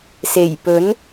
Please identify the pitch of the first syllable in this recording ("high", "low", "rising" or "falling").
low